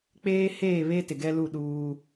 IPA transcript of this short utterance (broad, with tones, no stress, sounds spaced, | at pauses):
k͡p eː˦ h eː˦˨ β e˦ t ɪ˨ ɡ ɛ˦ l u˦˨ ɗ uː˦